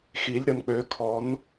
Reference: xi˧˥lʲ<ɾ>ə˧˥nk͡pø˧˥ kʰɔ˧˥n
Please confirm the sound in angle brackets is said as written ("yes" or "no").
yes